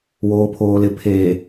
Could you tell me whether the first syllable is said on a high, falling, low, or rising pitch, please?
low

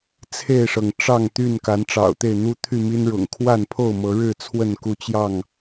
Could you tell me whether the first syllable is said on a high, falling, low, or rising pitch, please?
falling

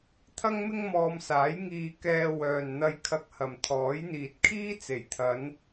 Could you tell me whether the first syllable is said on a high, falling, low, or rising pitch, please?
high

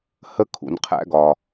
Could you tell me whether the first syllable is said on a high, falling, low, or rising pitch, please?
high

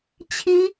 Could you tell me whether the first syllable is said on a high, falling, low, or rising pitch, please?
high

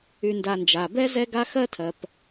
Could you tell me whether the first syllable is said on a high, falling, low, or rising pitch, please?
low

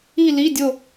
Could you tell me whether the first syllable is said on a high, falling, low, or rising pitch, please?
falling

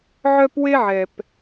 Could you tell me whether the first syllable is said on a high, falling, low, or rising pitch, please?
high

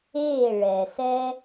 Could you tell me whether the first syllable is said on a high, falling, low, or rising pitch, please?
falling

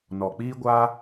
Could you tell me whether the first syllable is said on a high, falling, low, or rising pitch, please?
low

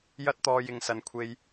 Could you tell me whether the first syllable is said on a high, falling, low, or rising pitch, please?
high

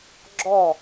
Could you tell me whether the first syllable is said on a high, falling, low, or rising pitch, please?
falling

